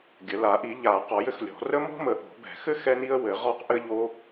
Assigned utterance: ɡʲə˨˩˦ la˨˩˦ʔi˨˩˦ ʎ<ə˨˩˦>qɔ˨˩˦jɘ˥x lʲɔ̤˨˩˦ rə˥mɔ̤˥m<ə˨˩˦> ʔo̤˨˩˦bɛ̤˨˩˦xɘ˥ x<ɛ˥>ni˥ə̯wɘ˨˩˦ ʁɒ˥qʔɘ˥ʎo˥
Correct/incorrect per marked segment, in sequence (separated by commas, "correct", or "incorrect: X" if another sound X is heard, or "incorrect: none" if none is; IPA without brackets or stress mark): incorrect: a˨˩˦, correct, correct